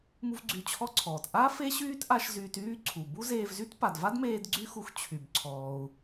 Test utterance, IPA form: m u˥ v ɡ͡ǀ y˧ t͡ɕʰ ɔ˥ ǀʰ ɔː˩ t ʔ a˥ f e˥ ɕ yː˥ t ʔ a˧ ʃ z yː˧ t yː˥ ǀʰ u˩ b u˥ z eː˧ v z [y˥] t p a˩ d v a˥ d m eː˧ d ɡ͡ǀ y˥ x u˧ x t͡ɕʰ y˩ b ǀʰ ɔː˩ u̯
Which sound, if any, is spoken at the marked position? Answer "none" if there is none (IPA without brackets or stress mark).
y˥